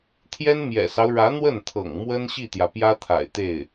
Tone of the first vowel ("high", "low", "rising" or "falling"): high